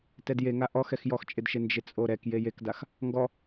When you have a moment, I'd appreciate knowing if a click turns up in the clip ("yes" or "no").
no